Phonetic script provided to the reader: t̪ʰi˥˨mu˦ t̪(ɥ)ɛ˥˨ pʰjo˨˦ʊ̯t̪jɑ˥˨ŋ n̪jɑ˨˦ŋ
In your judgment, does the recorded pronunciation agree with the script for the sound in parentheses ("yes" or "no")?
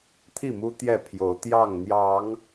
no